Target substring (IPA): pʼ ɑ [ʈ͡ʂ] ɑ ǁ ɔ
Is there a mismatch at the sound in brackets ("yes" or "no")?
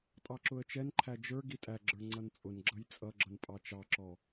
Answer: yes